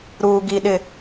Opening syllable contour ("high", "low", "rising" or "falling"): low